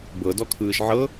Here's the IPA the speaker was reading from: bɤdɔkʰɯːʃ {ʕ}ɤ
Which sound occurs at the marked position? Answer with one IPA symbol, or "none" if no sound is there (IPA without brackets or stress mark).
ʕ